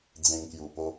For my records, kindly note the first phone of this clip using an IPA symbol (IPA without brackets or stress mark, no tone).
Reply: d͡z